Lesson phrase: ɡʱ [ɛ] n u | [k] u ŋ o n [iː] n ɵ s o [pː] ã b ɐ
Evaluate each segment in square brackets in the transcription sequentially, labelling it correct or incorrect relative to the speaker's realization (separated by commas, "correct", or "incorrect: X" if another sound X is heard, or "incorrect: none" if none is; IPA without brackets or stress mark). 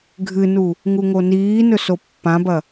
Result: incorrect: ɨ, incorrect: ŋ, correct, correct